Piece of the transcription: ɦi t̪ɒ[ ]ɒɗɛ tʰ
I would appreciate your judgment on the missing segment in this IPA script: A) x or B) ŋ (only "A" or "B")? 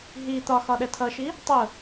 A